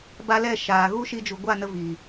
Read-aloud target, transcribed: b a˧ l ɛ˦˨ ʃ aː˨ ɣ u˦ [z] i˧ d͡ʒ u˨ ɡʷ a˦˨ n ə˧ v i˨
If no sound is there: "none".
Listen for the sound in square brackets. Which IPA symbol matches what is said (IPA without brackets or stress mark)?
ʃ